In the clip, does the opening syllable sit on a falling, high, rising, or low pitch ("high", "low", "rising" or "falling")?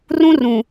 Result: high